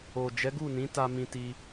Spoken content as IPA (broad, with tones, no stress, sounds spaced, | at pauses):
o˨ d͡ʒ ɛ˨˦ ɡ u˦˨ n ĩ˨˦ t a˧ m ĩ˧ t i˧